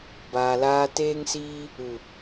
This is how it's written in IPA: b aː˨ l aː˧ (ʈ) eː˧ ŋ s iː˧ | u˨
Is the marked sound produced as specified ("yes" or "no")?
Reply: no